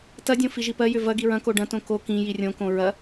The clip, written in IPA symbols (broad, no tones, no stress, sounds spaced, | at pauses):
t ɐ dʲ õ f i ʒ i p ɜ j ʏ v ɐ ɡ i ɹ ɐ̃ k o ɖ ɐ̃ t õ k o k ĩ j i rʲ õ k õ ɹ ɐ